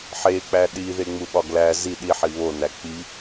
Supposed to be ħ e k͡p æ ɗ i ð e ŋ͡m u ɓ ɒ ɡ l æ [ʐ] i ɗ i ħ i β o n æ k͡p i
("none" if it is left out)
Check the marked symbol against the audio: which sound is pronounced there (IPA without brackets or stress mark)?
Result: z